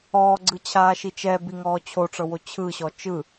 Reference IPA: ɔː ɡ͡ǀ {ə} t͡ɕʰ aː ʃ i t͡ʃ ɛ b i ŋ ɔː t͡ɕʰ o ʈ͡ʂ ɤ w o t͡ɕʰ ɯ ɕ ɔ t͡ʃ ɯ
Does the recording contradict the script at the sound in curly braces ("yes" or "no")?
yes